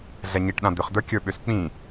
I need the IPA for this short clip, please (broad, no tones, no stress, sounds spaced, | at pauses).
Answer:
ɮ ɛ ɲ i ʈ ɗ ã d̪ ʏ χ d̪ ə˞ kʲ ə˞ ɓ ʏ s k͡p ĩ